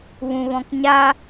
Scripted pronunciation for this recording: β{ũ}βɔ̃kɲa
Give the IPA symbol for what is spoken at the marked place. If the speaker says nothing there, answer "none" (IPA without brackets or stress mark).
ũ